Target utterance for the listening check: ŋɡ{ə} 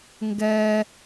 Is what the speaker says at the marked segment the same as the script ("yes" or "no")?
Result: no